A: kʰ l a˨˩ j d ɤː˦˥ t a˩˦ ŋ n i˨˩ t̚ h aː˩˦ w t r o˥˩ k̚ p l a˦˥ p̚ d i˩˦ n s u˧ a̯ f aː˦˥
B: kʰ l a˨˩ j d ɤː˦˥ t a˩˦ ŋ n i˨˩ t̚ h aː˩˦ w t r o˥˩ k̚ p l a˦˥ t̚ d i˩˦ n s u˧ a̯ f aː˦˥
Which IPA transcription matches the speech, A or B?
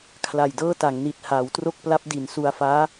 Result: A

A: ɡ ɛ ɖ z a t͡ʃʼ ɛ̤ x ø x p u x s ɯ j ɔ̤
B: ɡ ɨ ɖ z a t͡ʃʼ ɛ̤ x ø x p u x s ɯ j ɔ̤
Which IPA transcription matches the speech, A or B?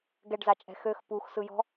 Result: A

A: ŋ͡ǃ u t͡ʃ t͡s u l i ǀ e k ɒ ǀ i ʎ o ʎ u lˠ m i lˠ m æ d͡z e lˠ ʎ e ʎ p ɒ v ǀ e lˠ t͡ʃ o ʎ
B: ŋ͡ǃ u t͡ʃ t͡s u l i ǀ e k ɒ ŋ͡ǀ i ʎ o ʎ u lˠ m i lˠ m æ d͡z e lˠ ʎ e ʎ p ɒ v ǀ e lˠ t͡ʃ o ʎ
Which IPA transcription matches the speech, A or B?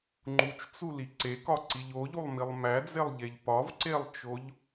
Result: A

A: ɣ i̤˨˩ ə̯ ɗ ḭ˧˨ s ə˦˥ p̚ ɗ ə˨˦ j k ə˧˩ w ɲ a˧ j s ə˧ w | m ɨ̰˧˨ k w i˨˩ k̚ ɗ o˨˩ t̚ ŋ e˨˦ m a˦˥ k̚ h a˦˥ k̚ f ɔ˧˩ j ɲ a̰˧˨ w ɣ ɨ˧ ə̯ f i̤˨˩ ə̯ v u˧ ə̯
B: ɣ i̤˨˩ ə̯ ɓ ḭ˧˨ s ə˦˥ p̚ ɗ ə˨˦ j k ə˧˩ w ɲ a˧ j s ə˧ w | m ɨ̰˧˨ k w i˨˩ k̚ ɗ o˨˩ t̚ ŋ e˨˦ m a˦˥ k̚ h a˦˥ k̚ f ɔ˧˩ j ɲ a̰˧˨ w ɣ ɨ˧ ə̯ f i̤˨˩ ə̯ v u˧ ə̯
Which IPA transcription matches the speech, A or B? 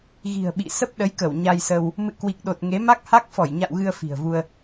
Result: B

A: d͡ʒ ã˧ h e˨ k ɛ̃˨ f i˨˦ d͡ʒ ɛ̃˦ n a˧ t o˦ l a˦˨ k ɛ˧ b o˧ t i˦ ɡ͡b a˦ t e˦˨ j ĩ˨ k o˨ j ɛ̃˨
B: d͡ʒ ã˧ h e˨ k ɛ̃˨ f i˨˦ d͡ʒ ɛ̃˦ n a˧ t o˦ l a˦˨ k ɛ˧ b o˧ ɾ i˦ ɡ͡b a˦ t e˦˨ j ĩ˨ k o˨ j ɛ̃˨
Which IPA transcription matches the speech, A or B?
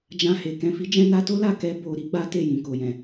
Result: B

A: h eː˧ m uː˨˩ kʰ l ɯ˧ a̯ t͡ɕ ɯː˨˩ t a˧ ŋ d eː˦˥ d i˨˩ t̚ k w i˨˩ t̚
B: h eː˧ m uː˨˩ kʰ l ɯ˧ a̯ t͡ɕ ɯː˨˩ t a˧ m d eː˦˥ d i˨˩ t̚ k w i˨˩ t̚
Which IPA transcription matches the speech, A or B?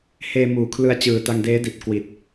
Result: A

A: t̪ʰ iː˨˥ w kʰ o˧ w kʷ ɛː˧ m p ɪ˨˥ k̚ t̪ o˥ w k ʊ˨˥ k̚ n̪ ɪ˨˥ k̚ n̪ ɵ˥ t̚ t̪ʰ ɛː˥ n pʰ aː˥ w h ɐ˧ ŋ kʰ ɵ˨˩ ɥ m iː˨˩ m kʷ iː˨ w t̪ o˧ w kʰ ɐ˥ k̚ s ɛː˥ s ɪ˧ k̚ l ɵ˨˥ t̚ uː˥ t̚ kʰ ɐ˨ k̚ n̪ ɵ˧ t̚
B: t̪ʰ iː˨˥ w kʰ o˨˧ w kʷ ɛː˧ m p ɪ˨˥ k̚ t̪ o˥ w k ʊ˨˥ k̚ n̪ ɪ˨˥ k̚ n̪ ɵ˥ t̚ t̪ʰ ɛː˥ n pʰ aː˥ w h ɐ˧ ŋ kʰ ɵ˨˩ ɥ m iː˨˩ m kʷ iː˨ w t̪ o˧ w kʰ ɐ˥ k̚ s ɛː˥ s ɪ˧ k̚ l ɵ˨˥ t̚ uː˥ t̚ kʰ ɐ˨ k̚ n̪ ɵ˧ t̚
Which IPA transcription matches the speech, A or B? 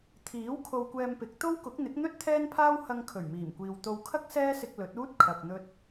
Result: A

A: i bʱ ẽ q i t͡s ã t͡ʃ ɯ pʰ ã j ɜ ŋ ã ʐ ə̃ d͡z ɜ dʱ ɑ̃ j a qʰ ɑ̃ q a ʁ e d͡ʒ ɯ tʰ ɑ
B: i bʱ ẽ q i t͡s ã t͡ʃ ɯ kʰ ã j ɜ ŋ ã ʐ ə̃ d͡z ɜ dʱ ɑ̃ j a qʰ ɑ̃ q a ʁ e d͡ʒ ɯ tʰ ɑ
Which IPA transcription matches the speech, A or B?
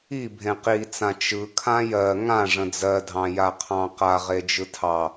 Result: B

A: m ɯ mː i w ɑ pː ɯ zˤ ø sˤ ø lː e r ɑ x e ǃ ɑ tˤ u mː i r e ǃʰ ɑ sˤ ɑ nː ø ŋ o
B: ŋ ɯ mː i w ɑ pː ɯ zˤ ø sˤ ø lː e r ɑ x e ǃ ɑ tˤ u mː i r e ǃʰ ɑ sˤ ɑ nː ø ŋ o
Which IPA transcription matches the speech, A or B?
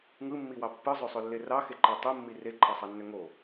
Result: B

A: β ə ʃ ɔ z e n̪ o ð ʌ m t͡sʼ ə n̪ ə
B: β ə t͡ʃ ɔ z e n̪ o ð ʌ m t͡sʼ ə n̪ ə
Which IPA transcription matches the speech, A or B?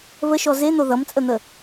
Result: A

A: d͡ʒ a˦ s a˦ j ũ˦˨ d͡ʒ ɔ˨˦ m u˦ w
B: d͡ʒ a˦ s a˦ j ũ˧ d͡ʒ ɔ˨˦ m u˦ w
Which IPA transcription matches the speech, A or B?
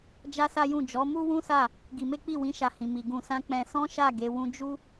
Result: A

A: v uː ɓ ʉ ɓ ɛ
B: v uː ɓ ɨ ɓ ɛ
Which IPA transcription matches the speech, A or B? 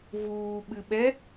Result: B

